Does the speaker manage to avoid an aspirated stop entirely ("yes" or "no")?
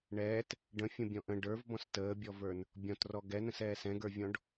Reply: yes